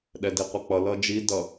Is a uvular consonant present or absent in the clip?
present